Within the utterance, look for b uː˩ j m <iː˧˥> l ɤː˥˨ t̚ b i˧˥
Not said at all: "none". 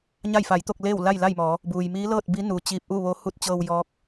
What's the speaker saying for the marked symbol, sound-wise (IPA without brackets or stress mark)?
iː˧˥